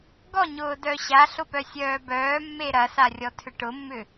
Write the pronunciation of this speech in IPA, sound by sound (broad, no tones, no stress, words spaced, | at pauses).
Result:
ɡɔɲʊːdœ ɕaɬʊpœsʲœː bœːmːe ɾɐsarʲɔtʰʏ ʈʊmːʏ